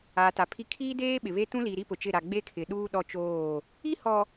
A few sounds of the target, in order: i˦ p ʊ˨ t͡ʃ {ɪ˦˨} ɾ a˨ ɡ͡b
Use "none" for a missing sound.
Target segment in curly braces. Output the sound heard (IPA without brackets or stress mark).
ɪ˦˨